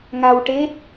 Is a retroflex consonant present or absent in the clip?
present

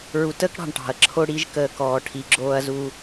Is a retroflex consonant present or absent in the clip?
present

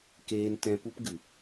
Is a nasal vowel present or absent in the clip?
present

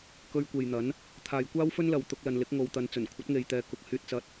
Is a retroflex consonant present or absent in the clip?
absent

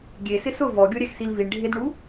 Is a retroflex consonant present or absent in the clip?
present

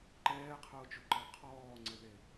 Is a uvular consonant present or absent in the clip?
present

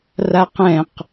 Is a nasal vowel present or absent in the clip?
present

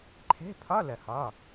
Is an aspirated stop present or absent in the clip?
present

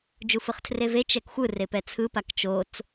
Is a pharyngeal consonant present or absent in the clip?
absent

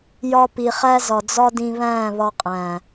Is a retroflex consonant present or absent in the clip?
absent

